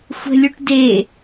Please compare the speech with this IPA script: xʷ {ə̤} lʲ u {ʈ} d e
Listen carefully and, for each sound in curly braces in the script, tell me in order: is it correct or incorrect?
correct, correct

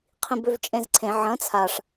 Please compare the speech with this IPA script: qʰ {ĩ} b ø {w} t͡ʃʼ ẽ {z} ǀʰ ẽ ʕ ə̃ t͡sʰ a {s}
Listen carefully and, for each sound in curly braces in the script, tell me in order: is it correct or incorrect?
correct, incorrect: v, correct, incorrect: ʂ

